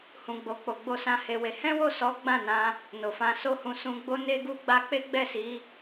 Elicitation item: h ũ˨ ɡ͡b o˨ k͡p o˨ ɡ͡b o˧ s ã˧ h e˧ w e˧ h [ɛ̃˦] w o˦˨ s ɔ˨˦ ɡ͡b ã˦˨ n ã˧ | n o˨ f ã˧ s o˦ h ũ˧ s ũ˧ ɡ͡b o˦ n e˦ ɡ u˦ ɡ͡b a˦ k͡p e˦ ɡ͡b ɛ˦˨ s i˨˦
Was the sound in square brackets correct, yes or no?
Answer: yes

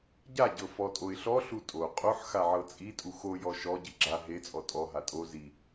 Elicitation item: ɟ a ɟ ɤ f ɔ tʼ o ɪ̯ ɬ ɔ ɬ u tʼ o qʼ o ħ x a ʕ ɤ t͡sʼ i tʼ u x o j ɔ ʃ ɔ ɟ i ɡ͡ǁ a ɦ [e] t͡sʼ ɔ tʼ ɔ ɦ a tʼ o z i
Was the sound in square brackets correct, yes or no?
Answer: yes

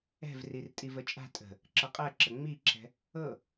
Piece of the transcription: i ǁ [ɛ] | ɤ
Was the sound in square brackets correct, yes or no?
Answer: no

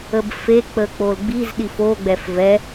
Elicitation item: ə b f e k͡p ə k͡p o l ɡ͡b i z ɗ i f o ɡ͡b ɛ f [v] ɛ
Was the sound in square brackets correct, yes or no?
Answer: yes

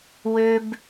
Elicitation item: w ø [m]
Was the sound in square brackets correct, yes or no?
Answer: no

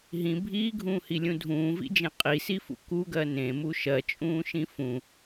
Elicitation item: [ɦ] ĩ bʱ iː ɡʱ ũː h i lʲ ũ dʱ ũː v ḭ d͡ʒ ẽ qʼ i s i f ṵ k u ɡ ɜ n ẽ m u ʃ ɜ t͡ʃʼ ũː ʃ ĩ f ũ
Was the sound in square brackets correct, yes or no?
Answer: yes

